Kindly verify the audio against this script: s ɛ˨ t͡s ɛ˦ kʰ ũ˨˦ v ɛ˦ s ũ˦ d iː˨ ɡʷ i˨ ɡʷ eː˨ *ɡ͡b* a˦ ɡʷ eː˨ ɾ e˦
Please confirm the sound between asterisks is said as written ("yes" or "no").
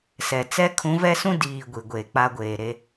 no